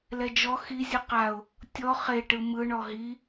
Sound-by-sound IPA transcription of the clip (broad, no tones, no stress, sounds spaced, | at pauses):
l ɛ d͡ʒ ɔ x i zʲ ɯ q a ʊ̯ | tʲ ɔ χ e ʈ ɯ m ɯ ɳ ɔ ɦ i